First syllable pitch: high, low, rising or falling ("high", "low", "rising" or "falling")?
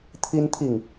high